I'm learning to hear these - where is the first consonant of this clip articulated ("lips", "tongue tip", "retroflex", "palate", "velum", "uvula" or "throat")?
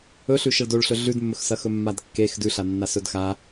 tongue tip